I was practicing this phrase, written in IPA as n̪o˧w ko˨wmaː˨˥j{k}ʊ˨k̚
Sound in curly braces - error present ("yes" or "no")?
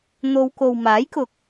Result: no